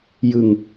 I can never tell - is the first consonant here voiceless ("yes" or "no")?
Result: no